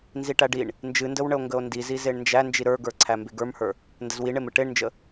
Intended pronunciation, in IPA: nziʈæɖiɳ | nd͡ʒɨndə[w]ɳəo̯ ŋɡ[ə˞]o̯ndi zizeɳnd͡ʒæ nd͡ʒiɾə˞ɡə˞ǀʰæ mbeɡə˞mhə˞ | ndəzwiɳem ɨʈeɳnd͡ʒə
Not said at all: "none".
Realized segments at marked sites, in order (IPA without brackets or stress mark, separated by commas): w, ə